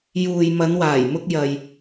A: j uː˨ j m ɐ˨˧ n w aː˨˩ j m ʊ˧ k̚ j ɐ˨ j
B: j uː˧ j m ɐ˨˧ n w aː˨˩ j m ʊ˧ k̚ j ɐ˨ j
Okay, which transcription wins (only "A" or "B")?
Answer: A